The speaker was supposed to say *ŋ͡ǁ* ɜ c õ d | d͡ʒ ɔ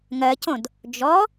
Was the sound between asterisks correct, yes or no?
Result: no